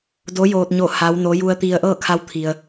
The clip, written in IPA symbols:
d o˧˥ j oː˧ t̚ ɲ o˥˨ h a˧˥ w n o˧˥ j u˧ ə̯ t̪ i˧ ə̯ ʔ ɤː˥˨ kʰ a˧˥ w t̪ʰ i˩ ə̯

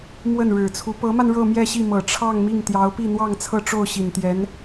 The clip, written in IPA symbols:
m w ə˥˩ n ɻ ɻ̩˨˩ t͡sʰ u˧˥ p ɤ˧˥ m a˧ n ɻ ɤ˥˧ m j ɛ˥˧ ɕ i˥˩ m ɤ˨˩ ʈ͡ʂʰ ɑ˥˧ ŋ m i˥˩ ŋ t̪ j ɑ˧˥ ʊ̯ p i˥˧ n̪ w ɑ˥˧ ŋ t͡sʰ ɤ˥˧ ʈ͡ʂ o˥˩ ʊ̯ ɕ i˨˩ n t̪ j ɛ˧˥ n

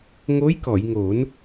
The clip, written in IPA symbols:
ŋ o˧˥ j k ɔ˨˩˨ j ŋ o˨˩˦ n

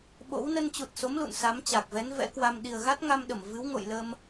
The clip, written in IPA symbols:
ɓ o̰˧˥ w n ə˧ n t͡ɕ u˨˩ t̚ s o˨˦ m l ṵ˧˨ n s a˨˦ m t͡ɕ a˨˩ k̚ v ɛ˨˦ n v ɛ̰˧˥ k w a˧ m ɗ i˨˩ ə̯ ɣ a˦˥ t̚ ŋ a˧ m ɗ ə˧˩ m v ɨ˨˦ w ŋ o̰˧˨ j l ə˧ m

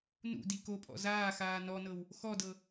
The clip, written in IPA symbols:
n ṵ d i k o pʼ ɔ̰ z aː x aː n ɔ n ɤ w | x ɔ d ɤ

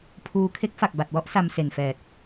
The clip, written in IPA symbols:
pʰ uː˧ kʰ e˦˥ k̚ f a˨˩ k̚ b a˨˩ t̚ w ɔ˥˩ ʔ s a˧ m s e˨˩ n f ɛː˨˩ t̚

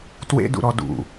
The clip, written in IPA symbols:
t w ḛ d ṵ ɾ ɔ d ṵ

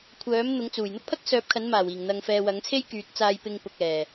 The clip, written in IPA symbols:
kʷʰ œː˨˥ m n̪ ʊ˨˥ ŋ t͡s uː˨˩ j n̪ ʊ˥ k̚ pʰ ɐ˥ k̚ s œː˨˥ p̚ kʰ ɐ˨˥ n m aː˨˩ w iː˨˩ ŋ n̪ ɐ˨ ŋ f ɛː˨ w ɐ˨˥ ŋ t͡sʰ e˥ j k yː˨˥ t̚ t͡s aː˧ j p ɪ˧ ŋ p ʊ˨ k̚ ɛː˨˩

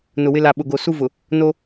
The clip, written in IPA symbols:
n ʊ˨ w ɪ˦ l a˨ ɓ ʊ˨ ɡ o˨ s u˦ v ʊ˨ | n o˦

